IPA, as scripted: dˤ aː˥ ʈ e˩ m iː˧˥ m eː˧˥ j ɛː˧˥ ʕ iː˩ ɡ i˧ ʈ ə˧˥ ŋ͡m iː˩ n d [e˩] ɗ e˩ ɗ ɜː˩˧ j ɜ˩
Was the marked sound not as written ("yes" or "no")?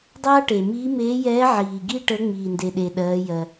no